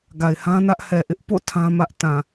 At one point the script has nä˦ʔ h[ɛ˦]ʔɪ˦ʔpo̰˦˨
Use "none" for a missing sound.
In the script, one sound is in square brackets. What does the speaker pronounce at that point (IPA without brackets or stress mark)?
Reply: ɛ˨